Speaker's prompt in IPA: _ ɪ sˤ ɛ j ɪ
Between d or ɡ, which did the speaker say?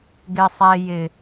ɡ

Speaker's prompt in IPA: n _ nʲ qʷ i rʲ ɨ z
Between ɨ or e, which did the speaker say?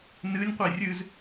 ɨ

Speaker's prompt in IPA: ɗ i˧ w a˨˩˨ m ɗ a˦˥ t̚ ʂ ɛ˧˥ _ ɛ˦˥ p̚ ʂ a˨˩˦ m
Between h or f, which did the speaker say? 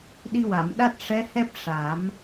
h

